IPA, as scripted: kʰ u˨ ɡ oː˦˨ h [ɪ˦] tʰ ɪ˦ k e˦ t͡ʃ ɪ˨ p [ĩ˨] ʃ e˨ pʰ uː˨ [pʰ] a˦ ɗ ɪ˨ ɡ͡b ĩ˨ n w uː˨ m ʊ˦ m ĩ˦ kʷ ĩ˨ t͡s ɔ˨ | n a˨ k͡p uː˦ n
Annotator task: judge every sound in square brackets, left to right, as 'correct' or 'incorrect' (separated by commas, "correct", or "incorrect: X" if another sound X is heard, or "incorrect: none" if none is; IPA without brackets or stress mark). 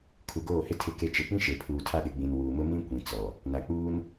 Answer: correct, incorrect: ĩ˦, incorrect: tʰ